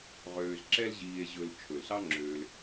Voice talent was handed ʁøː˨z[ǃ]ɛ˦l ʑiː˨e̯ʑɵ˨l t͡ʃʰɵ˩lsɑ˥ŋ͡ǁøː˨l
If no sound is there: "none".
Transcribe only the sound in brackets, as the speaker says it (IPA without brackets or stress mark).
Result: ǁ